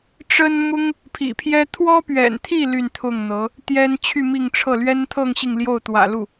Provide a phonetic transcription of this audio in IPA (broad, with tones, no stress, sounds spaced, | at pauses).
ʈ͡ʂ ə˥ n m ʊ˥ ŋ | pʰ ḭ˨˩ pʰ j ɛ˥ t̪ʰ w ɔ˥ p ɥ ɛ̰˨˩ n t̪ʰ i˥˧ l y˥˧ n t̪ʰ ʊ˥˩ ŋ n̪ ɤ˧˥ | t̪ j ɛ˥ n t͡ɕʰ y˥˧ m i˥˧ ŋ ʈ͡ʂʰ ɤ˥˩ l ɥ ɛ˥ n t̪ʰ ɤ˥˧ ŋ ɕ i˥˧ ŋ l j o˥˩ ʊ̯ t̪ w ä̰˨˩ l u˥˩